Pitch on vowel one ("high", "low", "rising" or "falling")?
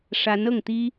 rising